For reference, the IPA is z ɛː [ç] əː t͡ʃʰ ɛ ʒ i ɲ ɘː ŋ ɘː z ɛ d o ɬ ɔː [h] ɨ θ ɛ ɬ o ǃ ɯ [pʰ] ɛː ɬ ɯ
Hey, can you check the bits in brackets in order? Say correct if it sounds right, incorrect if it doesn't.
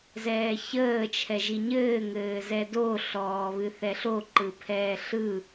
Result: correct, incorrect: β, correct

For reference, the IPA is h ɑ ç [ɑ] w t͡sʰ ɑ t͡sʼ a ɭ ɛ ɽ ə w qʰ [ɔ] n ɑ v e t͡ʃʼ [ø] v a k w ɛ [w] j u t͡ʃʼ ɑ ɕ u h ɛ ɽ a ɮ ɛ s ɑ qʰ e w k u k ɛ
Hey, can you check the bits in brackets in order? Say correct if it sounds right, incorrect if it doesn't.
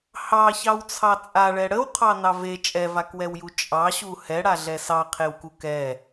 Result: correct, incorrect: ɑ, incorrect: ɛ, correct

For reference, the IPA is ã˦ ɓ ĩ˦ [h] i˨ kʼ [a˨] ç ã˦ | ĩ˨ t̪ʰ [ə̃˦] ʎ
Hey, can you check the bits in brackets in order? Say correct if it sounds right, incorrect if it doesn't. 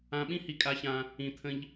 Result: correct, incorrect: a˦, correct

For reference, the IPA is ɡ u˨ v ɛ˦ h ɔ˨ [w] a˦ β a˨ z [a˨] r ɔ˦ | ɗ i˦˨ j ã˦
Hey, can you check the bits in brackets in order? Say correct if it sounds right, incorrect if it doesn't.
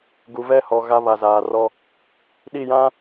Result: incorrect: ɣ, incorrect: aː˨

